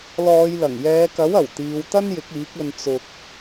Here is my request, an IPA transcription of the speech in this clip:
l ɔː˨˧ j l ɐ˨˩ ŋ j ɛː˨˧ k ɐ˨˥ w ɐ˨˩ w t̪ iː˨˧ w t̪ ɐ˥ n j ɪ˨˥ k̚ iː˨˥ k̚ ɵ˧ n t͡s ʊ˧ k̚

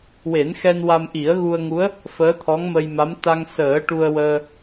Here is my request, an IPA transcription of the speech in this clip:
w e˨˩˦ n x ɛ˧ n w a˧ m ʔ i˨˩˦ ə̯ ɣ u˧ ə̯ ŋ u˧˥ ə̯ | f əː˧˥ t̪ʰ ɔ˧˥ ŋ m ə˧ j m a˧˥ m t̪ a˧ ŋ s əː˨˩˦ ʈ u˧ ə̯ w əː˧

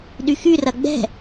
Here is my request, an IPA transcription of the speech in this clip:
ɗ y x y r ɐ ɡ͡b ɛ̤

